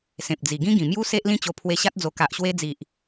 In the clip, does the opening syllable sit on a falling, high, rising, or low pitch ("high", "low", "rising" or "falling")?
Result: low